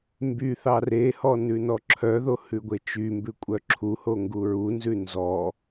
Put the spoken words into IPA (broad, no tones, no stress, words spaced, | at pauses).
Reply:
mby θɑrehɔ nʉnɔǁʰœðo hʉɡʷet͡ʃymbʉ kʷʼœǁʰuho ŋɡuɹunzʉ nzɔ